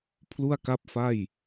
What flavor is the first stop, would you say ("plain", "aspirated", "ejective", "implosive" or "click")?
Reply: aspirated